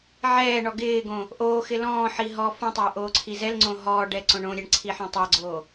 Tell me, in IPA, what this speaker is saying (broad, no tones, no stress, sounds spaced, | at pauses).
ʕ ɛː ɳ ɔ ɡ ɪː ɡ õ | ʔ oː x ɪ l ɔ̃ː ħ i ɦ ɔː f õ tˤ ɪː ʔ oː ǀʰ i z ɛ l ŋ͡ǀ õ ɦ ɔː ɖ ɛ ǀ õ ɳ õ ɾʲ ɛ ɳ ǀʰ i ħ ɔ̃ tˤ a ɡ͡ǀ oː